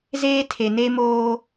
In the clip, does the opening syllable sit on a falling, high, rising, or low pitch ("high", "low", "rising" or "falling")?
high